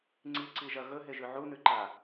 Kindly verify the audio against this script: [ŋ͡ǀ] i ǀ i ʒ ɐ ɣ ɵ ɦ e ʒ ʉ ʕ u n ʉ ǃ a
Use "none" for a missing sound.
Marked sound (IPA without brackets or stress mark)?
ŋ͡ǀ